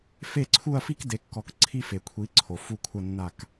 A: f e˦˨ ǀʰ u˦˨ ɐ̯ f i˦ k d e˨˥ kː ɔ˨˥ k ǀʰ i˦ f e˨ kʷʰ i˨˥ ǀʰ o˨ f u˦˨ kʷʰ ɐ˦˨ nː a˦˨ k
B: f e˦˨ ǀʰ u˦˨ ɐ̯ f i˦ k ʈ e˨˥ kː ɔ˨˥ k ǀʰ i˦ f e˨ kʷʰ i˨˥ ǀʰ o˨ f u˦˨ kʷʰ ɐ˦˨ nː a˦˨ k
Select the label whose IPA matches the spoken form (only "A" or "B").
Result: A